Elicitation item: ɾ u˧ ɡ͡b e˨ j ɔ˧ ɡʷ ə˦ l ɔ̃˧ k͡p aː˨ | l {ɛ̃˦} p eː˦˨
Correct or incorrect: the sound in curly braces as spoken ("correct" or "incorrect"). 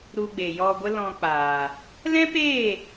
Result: correct